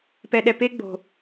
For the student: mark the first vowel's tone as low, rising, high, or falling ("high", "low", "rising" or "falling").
low